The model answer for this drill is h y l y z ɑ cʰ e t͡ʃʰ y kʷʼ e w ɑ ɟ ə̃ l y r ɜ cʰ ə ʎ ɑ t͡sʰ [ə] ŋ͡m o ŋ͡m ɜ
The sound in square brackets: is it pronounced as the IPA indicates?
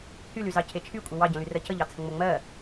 no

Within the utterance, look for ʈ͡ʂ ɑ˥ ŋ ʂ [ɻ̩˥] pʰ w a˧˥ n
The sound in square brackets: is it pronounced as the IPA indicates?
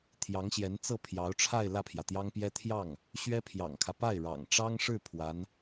no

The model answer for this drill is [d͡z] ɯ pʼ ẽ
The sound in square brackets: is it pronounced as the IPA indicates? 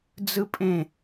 yes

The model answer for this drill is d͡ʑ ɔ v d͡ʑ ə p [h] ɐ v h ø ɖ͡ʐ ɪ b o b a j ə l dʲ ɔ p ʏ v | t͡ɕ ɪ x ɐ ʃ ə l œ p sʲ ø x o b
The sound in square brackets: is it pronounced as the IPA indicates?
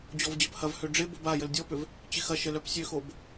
yes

